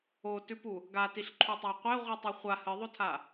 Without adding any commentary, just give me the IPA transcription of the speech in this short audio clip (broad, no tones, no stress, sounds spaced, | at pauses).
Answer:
o t ʉ p u | ɡ a t i ɬ ǃʰ u tˤ a qʷ e ʁʷ ɨ tˤ ɨ χʷ a h ɨ ðˤ o tʰ a